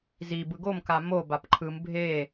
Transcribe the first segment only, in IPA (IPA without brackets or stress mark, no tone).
z